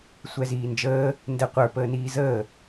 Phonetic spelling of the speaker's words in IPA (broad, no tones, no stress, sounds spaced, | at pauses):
sʷ ɛ z iː n d͡ʒ əː | n d ɛ qʷ ə˞ p əː n iː z əː